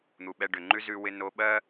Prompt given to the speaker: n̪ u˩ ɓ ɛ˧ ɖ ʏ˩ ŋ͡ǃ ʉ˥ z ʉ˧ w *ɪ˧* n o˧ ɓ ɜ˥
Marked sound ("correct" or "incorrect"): correct